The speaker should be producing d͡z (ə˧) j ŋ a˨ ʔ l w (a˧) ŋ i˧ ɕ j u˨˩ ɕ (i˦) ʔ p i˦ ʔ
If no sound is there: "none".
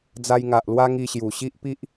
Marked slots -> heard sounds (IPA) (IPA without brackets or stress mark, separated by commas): a˧, a˦, i˦